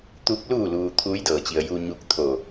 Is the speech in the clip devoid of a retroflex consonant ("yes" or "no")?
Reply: yes